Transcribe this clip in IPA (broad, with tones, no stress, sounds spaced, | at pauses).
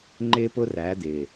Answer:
ŋ͡ǃ ɪː˦ p ʊ˦ r æ˨˦ d̪ ɪː˨